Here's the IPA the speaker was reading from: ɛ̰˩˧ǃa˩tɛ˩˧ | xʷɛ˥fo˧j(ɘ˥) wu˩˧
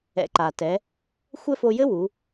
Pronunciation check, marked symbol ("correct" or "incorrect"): correct